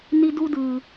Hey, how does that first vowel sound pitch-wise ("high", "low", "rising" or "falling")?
high